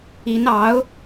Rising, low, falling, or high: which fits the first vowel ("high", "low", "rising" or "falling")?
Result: rising